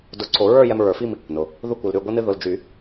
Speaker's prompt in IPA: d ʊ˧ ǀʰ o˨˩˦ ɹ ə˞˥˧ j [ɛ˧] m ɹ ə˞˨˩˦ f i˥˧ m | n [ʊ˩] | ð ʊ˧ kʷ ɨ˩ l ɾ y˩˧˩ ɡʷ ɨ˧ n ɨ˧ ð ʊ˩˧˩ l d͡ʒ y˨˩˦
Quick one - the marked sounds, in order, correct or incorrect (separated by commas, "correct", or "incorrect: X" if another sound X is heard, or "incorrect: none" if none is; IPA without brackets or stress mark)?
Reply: correct, correct